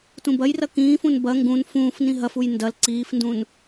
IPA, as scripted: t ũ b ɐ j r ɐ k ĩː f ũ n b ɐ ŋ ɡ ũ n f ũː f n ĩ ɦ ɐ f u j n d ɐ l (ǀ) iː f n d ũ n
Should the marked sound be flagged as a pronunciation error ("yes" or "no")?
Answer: no